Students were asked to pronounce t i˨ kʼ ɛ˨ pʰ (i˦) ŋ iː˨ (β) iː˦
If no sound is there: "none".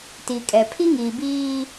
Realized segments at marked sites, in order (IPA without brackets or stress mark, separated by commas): i˦, b